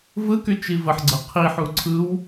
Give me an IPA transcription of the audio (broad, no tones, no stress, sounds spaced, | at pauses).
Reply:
v ɯ k y t͡ʃ i v ə ħ ɡ͡ǀ ɐ qʰ i ħ u ǀʰ ɯ w